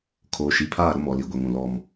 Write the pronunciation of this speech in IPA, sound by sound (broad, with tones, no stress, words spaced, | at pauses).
kʰoː˨ʃi˨pʰaː˦˨ ɾʊ˦mɔ˨li˨ɡʷɛ˨ŋ ũ˨lɔ˦m